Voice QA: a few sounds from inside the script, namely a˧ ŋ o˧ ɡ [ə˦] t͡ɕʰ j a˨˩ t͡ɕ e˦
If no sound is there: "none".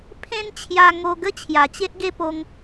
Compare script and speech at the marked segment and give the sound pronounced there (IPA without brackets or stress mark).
ə˦